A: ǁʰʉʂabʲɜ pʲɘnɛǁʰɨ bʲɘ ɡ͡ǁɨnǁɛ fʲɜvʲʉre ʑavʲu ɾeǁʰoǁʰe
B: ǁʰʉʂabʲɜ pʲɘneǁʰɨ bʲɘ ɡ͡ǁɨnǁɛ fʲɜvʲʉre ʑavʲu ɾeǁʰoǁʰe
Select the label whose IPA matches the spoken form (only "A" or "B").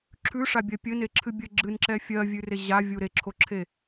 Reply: B